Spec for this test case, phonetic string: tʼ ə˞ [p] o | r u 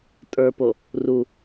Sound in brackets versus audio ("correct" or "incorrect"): correct